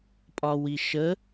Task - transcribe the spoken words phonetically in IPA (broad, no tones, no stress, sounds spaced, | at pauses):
pʼ ɒ w i ʃ ə